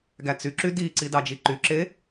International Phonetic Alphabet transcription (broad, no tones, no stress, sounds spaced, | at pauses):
ɡ æ t͡s y ǁ y d i ǀ i d ɑ d͡ʒ i ǃ y ǁ e